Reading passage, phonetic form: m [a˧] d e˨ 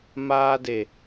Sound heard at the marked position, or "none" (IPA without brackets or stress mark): aː˧